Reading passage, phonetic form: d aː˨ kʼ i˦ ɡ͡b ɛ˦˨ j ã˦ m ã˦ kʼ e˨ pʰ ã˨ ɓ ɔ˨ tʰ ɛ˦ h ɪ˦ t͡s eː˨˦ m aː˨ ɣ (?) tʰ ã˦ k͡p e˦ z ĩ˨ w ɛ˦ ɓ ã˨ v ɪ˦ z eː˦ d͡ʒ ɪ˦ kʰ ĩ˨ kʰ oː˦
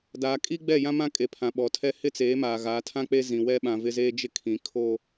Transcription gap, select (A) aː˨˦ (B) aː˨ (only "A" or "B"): A